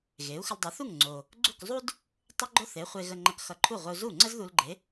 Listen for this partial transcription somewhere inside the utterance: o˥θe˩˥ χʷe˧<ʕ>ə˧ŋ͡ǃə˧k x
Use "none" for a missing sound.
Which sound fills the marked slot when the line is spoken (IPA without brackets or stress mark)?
ɣ